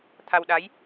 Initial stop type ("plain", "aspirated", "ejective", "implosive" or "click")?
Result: aspirated